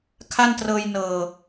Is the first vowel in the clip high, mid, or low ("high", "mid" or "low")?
low